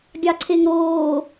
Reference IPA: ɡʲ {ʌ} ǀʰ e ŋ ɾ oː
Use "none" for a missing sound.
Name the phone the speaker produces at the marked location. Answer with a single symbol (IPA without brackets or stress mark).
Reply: ɑ